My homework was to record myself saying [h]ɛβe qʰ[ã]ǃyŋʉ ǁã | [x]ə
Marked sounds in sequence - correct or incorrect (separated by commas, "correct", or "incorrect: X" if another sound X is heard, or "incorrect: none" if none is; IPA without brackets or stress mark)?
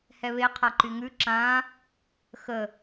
correct, incorrect: a, correct